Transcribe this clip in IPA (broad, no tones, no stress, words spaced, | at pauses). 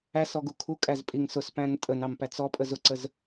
æsɔ ɡukʰukʼæz pʼiŋsʊspæ̃n tʼənɑm pæt͡sɔpʼəz ʊǀəz